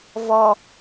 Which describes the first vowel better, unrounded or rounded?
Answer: rounded